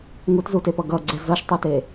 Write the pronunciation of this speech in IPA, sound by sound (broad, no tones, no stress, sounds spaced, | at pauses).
ŋ u t z u t e p ʌ ɡ ʌ ɡ͡ǀ ɛ z ʌ ʃ tˤ o t e